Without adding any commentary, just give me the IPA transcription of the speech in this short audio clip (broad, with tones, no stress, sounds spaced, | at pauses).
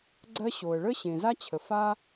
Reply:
ɡ͡ǀ ɜ˥ ɕ o˩ ə̯ ɭ ə˥ ɕ ẽ˩ z a˥ t͡ɕʰ ə˩ f a˥